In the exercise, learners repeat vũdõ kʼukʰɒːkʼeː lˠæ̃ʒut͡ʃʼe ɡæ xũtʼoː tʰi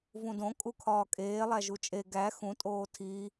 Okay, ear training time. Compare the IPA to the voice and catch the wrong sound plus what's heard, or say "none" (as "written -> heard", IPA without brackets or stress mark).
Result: æ̃ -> æ